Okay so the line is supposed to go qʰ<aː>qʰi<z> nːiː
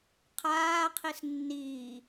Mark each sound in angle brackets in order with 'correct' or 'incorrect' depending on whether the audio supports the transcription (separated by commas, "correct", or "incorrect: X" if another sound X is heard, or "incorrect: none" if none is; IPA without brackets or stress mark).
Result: correct, incorrect: s